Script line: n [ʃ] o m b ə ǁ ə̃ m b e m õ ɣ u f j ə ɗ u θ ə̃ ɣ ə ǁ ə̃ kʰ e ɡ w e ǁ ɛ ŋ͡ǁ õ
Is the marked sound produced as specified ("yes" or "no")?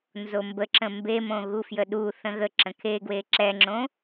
no